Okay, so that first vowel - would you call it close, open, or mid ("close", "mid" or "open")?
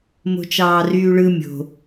mid